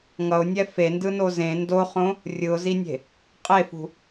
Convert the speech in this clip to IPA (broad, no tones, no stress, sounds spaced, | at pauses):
ŋ ʌ ʊ̯ nʲ ɛ f e n d ɯ n o z ẽ n d o χ õ | rʲ ɯ ʊ̯ z i nʲ e̤ | qʼ e f ṳ